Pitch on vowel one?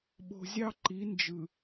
low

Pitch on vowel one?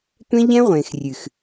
high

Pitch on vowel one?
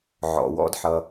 low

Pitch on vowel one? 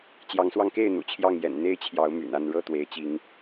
rising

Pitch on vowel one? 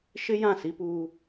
high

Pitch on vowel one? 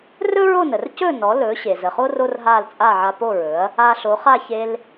high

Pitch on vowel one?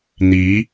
rising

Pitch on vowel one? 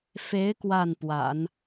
rising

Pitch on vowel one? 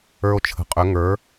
high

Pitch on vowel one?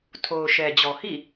low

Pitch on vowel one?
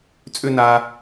high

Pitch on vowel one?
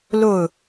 falling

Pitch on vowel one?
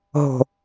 low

